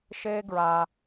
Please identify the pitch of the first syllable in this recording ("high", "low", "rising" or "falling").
high